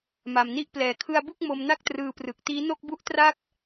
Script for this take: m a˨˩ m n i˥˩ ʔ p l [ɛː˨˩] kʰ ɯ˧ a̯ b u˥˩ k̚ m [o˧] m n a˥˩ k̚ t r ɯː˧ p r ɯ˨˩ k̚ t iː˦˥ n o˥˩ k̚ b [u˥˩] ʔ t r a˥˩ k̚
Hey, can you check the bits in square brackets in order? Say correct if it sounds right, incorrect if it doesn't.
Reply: correct, correct, correct

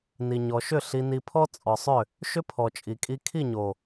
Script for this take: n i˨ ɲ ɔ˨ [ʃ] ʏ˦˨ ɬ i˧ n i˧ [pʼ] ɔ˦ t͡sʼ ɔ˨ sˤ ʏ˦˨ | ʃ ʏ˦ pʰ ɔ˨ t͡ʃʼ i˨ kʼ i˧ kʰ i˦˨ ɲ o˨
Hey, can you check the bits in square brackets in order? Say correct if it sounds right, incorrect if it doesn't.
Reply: correct, incorrect: pʰ

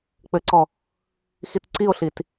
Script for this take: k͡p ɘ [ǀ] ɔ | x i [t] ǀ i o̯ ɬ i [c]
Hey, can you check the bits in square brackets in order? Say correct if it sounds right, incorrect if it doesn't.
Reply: correct, correct, incorrect: t

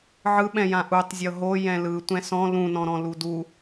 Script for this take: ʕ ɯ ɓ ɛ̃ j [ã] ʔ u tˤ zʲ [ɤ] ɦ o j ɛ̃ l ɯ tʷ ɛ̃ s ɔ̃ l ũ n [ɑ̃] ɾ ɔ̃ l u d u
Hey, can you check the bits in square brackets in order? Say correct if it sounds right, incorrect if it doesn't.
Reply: correct, correct, incorrect: ɔ̃

